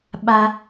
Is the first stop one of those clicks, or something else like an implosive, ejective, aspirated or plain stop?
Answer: implosive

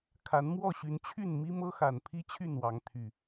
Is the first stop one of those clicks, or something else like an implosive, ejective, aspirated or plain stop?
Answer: aspirated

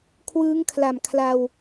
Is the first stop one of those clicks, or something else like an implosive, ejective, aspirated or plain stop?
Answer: aspirated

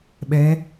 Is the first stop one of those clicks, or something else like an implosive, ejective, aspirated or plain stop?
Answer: implosive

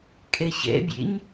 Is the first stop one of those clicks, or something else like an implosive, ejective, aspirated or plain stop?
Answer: ejective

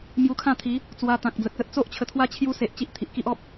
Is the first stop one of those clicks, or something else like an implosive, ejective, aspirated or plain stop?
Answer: aspirated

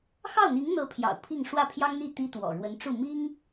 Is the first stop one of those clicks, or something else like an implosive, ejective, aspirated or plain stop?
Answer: aspirated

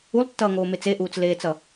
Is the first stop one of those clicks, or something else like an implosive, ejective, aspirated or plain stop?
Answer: plain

